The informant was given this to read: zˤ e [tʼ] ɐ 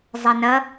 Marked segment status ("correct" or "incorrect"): incorrect